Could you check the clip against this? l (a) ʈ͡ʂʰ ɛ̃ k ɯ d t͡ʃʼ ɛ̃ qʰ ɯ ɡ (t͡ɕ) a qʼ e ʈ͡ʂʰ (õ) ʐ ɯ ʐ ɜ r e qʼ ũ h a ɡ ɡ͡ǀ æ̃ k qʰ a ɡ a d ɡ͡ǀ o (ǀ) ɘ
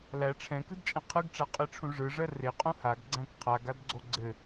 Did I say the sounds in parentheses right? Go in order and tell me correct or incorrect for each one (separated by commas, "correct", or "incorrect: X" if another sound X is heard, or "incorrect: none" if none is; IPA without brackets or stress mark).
incorrect: æ, incorrect: ʈ͡ʂ, incorrect: ũ, incorrect: ɡ͡ǀ